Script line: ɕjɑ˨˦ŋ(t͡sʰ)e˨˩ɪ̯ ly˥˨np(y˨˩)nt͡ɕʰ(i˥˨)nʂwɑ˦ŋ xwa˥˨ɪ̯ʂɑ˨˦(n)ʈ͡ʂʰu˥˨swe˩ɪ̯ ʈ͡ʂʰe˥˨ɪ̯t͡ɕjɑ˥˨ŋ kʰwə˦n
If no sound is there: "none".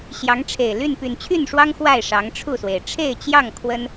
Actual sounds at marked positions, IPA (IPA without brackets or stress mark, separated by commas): ʈ͡ʂʰ, y˨˩, y˥˨, ŋ